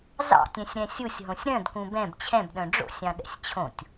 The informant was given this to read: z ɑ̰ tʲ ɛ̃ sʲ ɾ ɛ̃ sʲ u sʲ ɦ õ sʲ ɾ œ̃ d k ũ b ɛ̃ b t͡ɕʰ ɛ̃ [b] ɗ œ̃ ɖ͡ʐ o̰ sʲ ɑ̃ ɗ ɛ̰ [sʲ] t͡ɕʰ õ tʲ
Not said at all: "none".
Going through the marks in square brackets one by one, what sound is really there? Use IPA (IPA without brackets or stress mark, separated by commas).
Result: b, sʲ